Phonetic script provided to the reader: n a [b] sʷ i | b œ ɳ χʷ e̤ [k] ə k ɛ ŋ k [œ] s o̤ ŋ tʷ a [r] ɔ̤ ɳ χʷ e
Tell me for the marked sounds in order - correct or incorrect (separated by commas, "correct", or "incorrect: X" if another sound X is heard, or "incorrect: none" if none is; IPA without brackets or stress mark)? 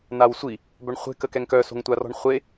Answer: incorrect: w, correct, correct, correct